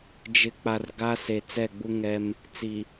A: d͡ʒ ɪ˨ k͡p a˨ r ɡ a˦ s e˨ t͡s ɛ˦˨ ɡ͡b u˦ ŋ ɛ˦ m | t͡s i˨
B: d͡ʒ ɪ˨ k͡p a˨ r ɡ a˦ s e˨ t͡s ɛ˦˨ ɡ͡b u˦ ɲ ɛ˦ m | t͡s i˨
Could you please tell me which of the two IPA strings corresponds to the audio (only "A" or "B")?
A